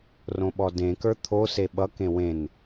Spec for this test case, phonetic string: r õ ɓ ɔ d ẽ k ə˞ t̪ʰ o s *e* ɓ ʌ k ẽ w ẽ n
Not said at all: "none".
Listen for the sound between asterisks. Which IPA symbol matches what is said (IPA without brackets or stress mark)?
e